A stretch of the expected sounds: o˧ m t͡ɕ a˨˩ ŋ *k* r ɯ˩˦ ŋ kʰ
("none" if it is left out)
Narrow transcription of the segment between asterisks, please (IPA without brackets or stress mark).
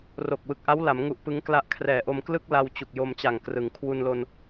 k